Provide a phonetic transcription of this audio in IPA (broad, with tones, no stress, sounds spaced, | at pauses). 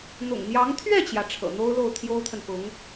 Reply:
n̪ ʊ̰˨˩ ŋ n̪ j ɑ˧˥ ŋ t̪ʰ ɥ ɛ˥˩ t͡ɕ j ä˩ ʈ͡ʂʰ ɤ̰˨˩ n̪ o˥ ʊ̯ l o˥˩ ʊ̯ t̪ʰ j o˥ ʊ̯ t̪ʰ ə˨ n p ʊ˧˥ ŋ